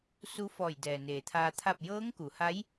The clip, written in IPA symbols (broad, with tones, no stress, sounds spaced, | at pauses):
s u˧˥ f ɔː˧˩ j d ɛː˩ n eː˩ t̪ʰ aː˧ t̪ʰ a˥˨ p̚ j ɤː˧˥ ŋ k u˩˧ h a˧˥ j